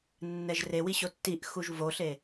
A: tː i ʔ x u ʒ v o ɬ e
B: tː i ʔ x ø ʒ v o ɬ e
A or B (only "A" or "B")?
A